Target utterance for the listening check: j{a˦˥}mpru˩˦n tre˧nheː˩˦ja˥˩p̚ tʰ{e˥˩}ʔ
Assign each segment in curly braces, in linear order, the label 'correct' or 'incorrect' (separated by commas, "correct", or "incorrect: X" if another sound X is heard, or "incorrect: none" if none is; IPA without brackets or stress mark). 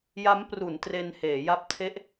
correct, incorrect: e˦˥